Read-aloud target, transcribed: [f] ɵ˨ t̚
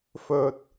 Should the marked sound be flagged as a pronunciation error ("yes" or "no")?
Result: no